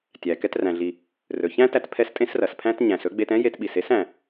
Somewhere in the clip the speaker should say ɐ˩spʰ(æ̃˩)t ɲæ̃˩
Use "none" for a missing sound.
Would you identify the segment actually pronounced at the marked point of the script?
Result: æ̃˥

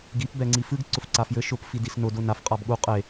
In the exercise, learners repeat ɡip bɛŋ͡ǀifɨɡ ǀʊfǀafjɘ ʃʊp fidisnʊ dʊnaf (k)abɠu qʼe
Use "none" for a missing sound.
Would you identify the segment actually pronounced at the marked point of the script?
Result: qʼ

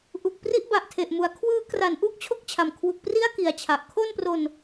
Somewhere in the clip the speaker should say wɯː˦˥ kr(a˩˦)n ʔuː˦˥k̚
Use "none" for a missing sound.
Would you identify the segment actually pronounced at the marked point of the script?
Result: a˩˦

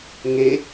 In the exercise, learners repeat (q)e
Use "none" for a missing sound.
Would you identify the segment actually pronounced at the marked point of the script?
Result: ŋ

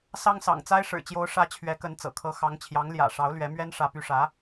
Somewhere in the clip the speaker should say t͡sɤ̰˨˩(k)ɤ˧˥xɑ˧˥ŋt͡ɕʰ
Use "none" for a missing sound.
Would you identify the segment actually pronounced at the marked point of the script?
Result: kʰ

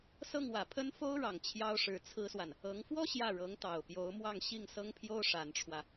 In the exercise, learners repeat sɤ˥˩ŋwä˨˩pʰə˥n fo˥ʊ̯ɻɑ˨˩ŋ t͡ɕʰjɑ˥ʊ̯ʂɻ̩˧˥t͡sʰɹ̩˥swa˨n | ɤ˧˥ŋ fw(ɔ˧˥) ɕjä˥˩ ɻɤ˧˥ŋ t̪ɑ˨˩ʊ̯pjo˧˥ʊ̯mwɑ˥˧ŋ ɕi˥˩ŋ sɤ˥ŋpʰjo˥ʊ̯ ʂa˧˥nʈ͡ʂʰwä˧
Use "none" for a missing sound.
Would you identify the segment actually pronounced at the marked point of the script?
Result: ɔ˥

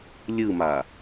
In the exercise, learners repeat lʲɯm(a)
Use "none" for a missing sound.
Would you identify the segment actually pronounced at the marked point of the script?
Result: a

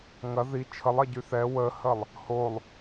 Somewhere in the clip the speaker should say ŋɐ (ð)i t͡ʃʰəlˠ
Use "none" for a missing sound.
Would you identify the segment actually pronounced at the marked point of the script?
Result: ð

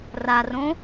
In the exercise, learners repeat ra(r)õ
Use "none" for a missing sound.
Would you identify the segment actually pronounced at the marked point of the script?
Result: r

